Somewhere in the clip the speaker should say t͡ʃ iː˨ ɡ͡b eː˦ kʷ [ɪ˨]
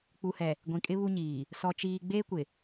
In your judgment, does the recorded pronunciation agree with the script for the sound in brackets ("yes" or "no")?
yes